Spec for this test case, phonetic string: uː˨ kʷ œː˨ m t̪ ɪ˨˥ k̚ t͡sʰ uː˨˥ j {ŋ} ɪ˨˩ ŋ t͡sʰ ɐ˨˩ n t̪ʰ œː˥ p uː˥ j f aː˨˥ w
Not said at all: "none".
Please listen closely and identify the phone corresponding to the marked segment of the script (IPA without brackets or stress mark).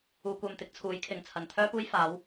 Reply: kʰ